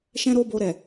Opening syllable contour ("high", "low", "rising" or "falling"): high